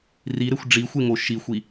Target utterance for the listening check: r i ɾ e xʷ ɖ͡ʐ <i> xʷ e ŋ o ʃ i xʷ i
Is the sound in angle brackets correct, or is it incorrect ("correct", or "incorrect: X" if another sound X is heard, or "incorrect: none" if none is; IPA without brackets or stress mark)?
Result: correct